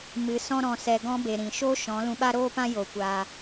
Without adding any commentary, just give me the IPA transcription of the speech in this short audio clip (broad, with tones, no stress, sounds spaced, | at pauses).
m ɨ˧ s ɔ̃˦ ɾ ɔ̃˧ s ɛ˧ ɡ ɔ̃˧ b e˨ ɾ ĩ˨ ʃ o˦ ʃ ɔ̃˨˦ l ũ˧ ɓ a˦ ɾ oː˦ p ã˦ j o˧ kʷ aː˧